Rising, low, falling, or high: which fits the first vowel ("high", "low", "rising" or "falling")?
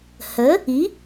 rising